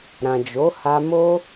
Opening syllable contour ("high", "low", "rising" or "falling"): low